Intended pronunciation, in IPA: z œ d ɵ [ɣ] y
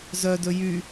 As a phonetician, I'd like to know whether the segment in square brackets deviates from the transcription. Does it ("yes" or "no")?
yes